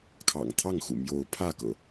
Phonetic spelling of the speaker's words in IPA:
kʰ ɑ̰˨˩ ŋ t̪ʰ ɑ˥˨ ŋ x ṵ˨˩ m j o˨˦ ʊ̯ pʰ ä˥˨ k ɤ̰˨˩

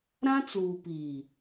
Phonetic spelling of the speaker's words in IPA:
ɾ ã˦ t͡s uː˨ p iː˨

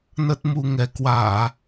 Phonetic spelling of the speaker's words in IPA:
n ə˦˥ t̚ m u˧ ŋ ɛ˨˦ k w aː˧˩˨

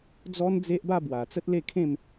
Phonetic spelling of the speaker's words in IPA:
d͡z ɔ˦ n d͡z e˦ ʔ b a˥˧ b w a˨˩ t͡s ə˦ t̚ l e˥˧ kʰ ẽ˥˧ m

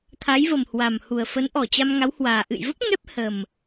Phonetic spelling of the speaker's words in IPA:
t̪ʰ a˨˦ j v ə˨˩ m h w a˨˩ m h u˨˩ ə̯ f ə˨˦ n ʔ ɔ˨˩ t͡ɕ a˧ m ŋ a˨˦ w h w aː˨˩ ʔ ɨ̰˧˨ j v ə˦˥ p̚ ŋ ɛ˦˥ p̚ h ə˨˩ m

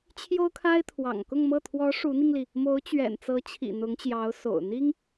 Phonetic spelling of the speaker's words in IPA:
t͡ɕʰ j o˥ ʊ̯ kʰ a˥ ɪ̯ t̪ʰ w ɑ̰˨˩ ŋ k ʊ˥˧ ŋ m ɤ˥˩ t̪ʰ w ɔ˧˥ ʂ u˧˥ n̪ i˧ ŋ l i˩ | m o˧˥ ʊ̯ t͡ɕ ɥ ɛ̰˨˩ n t͡s ɤ˧˥ t͡ɕʰ ḭ˨˩ n̪ ʊ˧˥ ŋ t͡ɕ j ɑ˧˥ ʊ̯ s o̰˨˩ ʊ̯ n̪ i˥ ŋ

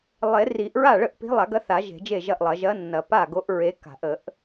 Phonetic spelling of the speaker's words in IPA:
lˠ e˨˩˦ r i˨˩˦ ʔ ɹ a˥˩ ɭ ə˥˩ ʔ p i̤˧˥ lˠ a˨˩˦ ɡ ɐ˧˥ θ a˨˩˦ ʒ e̤˨˩˦ d͡ʒ e˥˩ ʒ ɐ˥˩ ʔ lˠ ɐ˨˩˦ ʒ ɐ˧˥ nː ɐ˨˩˦ p a˥˩ ɡ o˧˥ ʔ ɹ e˧˥ k a̤˨˩˦ ʔ ə˨˩˦ ʔ

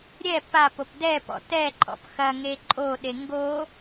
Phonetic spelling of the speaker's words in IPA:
ɾʲ ɛ p a p o p d ɛ p ɔ̰ t ɛ ǃʼ ɔ̰ p x ɐ ŋ e ǃʼ o ɗ e ŋ ɡ o

